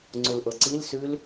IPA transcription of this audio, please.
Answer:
ŋ͡ǀ u l ʔ ɤ ǀ i l s ʉ l

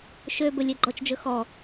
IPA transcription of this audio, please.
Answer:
ʃ ø b ɵ lʲ ɛ ɡ͡ǃ ɔ t͡ʃ d͡ʒ ɵ x ɔ

